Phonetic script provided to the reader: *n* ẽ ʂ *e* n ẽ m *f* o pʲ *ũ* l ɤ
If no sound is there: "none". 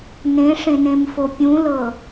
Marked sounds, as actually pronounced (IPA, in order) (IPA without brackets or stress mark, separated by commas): n, ẽ, f, ũ